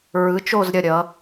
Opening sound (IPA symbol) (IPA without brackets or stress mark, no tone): ɹ